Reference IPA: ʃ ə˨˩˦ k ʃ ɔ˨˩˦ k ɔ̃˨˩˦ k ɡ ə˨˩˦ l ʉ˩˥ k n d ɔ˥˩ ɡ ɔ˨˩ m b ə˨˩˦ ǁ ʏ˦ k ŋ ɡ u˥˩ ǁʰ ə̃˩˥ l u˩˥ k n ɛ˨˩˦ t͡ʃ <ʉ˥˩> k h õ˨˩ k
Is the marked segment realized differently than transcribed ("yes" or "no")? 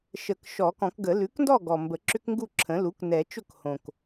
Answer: yes